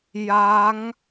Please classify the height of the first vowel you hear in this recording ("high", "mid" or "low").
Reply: low